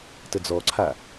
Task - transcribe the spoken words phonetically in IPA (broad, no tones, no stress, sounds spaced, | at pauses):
t ə d͡z ɔ ǀʰ a